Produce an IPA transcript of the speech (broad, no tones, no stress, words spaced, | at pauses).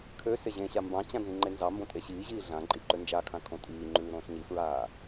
kʰø seʑẽɕa mbɑ̃t͡ɕã nzĩŋ͡ǃenzɑmbõ tʼeɕiːʑiː ɮã ǃʼiǃønd͡ʒakʰã kʰõtʼiːŋ͡ǃʉː ɾõːɬɲifɹaː